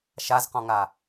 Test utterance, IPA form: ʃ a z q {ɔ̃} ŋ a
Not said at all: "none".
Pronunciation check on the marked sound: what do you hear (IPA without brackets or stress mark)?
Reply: ɔ̃